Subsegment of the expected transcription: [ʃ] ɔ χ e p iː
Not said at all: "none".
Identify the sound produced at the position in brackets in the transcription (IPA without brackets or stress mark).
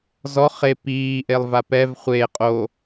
z